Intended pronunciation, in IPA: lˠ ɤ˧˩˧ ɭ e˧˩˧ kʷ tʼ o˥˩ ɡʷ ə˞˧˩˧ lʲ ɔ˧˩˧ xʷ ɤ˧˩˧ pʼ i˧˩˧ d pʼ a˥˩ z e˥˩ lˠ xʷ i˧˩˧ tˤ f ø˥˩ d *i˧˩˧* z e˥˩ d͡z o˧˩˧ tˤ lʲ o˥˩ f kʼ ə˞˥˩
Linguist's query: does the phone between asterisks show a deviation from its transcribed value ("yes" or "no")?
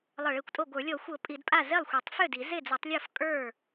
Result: no